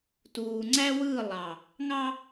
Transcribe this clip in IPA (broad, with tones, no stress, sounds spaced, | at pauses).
t uː˨ ŋ͡ǀ æ˦ w ɯː˦˨ lˠ ɑ˨ | ŋ ɑ˦